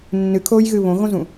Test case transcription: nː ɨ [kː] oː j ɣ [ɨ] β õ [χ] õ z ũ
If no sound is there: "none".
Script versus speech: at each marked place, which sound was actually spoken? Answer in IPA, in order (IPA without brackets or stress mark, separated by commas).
kʰ, ɨ, ɣ